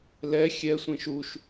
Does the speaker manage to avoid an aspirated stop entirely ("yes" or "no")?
yes